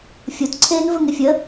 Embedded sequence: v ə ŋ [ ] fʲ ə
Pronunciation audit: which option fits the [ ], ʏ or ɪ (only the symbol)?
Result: ɪ